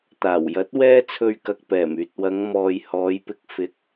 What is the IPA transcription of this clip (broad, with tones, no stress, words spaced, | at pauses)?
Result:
t̪aː˨˩wjɐ˨˥t̚ wɛː˥t͡sʰɵ˧ɥkɐ˨k̚ pɛː˨˩myː˨t̚wɐ˨˧ŋ mɔː˨jhɔː˨˧jpɪ˧k̚ fɪ˨˥k̚